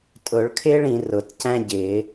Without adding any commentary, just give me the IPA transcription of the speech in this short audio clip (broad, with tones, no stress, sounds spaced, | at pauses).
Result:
tʼ ʊ˨˩˦ ɭ kʰ ɪː˥ ɭ ĩ˨˩˦ r ʊ˨˩˦ t c æ̃˥ ɟ ɪː˨˩˦